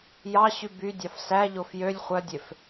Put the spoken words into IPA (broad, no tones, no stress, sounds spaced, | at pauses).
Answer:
j ɑ ɕ y b y dʲ ɑ f s æ ʎ o f j ø lʲ χʷ œ dʲ e f